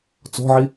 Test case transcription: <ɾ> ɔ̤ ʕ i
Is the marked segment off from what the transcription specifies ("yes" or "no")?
yes